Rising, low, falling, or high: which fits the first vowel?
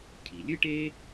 low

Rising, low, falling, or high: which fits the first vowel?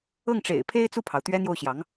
falling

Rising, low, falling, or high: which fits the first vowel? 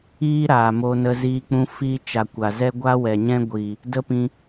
high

